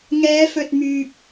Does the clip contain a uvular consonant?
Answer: no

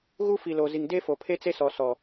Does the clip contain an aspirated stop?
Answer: yes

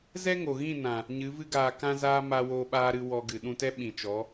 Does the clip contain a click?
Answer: no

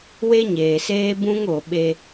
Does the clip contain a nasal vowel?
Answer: yes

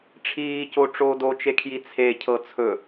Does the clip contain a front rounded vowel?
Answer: no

